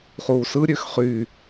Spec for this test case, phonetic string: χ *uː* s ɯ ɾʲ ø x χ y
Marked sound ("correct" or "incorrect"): correct